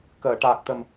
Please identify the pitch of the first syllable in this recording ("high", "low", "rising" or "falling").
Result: low